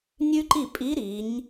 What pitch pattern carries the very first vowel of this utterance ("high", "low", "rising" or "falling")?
high